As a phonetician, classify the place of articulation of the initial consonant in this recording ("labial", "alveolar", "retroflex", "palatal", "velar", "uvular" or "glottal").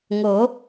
velar